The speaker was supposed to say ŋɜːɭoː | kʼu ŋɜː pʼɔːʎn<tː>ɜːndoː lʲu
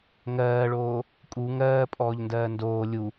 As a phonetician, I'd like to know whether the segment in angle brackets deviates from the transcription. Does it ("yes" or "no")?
yes